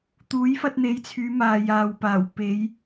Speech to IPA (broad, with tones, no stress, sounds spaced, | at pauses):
t̪ uː˨˥ j f ɐ˧ t̚ n̪ e˨˧ j t͡sʰ yː˨˧ m aː˨ j aː˨ w p aː˨˩ w p e˨˧ j